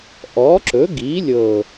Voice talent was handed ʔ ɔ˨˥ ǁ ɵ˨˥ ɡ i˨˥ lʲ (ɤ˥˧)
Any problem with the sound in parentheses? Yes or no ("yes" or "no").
no